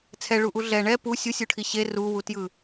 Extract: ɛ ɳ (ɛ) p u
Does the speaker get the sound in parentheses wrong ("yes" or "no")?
no